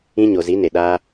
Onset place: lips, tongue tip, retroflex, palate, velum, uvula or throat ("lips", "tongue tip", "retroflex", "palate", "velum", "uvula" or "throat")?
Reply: palate